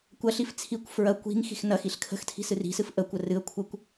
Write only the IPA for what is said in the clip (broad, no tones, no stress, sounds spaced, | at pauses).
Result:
kʷ ɐ ɬ i f t͡sʰ i kʷ f ɹ ɐ kʷ i̤ ŋ x i̤ x n ɐ x i ɬ kʰ ə̤ x tʰ i̤ s ɨ r i̤ s ɨ f ʔ ə kʷ ə r ɨ ə̯ kʷʰ ə kʷ